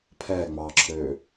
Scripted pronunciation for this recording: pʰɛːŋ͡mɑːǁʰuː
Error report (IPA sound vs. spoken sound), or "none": uː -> øː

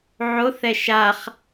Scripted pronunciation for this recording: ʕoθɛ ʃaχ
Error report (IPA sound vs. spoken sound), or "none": none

